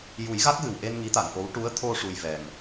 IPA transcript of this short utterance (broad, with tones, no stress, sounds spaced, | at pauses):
j u˨˩˦ j ɣ a˦˥ k̚ ɣ ɨ˨˩ w ʔ e˧ n ŋ i˧˥ t̪ a˨˩˨ ŋ ʔ o˧˥ w ʈ u˧˥ ə̯ t̪ʰ o˧ ʂ u˧ j v ɛ˨˩ ŋ